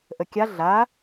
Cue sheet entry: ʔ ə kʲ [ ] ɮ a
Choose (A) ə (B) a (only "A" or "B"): B